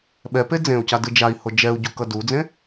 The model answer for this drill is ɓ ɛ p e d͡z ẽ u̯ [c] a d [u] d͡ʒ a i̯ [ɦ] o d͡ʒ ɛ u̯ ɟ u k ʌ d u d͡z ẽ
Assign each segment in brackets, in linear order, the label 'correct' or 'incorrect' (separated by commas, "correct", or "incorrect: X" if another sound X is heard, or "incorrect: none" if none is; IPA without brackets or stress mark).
correct, incorrect: ɯ, incorrect: h